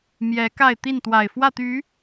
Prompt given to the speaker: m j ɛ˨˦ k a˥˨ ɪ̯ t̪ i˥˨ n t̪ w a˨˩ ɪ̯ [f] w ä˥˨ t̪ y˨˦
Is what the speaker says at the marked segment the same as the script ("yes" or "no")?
yes